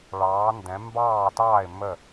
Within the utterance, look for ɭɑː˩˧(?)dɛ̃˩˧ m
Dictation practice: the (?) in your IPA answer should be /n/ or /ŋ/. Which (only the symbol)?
n